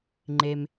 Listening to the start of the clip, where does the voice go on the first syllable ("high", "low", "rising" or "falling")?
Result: low